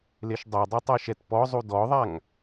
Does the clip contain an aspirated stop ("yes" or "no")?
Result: no